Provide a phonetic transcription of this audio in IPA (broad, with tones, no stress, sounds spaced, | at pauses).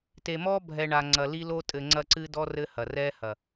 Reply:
t e˨ m ɔ˦ bʱ ɛ˨ ɳ a˨ ŋ͡ǀ ɐ˨ l i˦ l o˦ tʼ ɘ˨ ŋ͡ǀ ɐ˦ ǀ ɨ˦ d ɔ˦ r ɘ˦ h ɐ˨ r ɛ˦ h ɐ˨